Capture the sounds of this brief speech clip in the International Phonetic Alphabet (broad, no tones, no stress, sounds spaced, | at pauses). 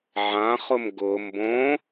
ʕ ã χ ʊ m ɡ ʊ m b õ